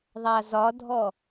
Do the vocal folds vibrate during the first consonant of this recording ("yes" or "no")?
yes